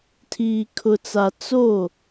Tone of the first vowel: low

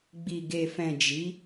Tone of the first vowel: low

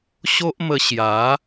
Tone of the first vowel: high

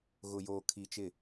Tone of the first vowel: low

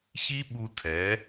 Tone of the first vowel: high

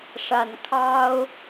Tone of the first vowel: low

